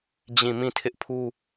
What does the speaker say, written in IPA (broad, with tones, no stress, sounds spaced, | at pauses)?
d͡ʑ ĩ˦˨ m ĩ˦˨ tʰ ɪ˦ ʔ pʰ u˦